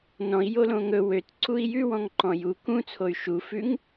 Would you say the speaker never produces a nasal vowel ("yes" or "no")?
no